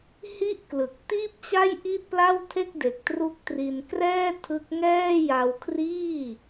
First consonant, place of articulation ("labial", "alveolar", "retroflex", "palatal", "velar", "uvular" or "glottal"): glottal